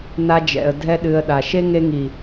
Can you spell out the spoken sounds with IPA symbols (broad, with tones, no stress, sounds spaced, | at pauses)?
n a˧ d͡ʒ ɛ̰˨ ə̯ dʱ ɛ˦ ɗ ɨ˧ ə̯ ɗ a˨ ʃ e˦ ŋ e˧ ŋ i˨